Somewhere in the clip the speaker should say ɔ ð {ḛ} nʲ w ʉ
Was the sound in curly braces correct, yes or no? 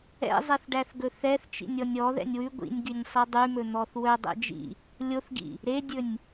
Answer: no